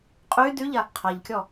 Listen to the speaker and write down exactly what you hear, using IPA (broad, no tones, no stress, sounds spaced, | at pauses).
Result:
qʼ y d y ʎ a | qʰ a ʎ kʲ ɔ